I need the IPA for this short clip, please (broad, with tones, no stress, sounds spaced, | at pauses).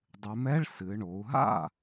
dˤ ɨ˩˧ m ɛ˧˥˧ ɭ s ɨ˩˧ ɳ o˩˧ u̯ ɦ a̰˥˩